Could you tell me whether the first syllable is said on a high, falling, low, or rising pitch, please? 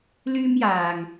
high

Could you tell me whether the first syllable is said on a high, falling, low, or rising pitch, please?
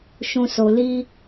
low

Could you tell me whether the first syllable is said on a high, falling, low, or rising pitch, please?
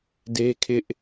high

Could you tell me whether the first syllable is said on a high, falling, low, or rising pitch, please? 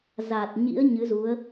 low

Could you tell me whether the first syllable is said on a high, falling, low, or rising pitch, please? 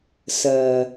low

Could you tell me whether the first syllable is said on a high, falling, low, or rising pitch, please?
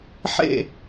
falling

